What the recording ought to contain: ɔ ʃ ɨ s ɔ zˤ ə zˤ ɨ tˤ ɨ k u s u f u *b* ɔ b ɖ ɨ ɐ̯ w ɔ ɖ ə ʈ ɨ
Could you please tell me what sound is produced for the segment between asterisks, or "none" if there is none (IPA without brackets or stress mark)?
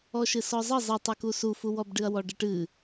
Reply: w